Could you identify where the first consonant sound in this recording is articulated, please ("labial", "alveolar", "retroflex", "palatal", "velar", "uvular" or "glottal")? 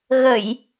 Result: velar